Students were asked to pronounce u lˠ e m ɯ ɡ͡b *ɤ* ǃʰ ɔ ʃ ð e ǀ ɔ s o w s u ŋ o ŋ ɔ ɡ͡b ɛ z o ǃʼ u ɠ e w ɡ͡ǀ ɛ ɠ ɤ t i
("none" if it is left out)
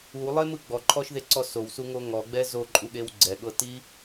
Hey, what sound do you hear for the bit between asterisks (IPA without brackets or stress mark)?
ɔ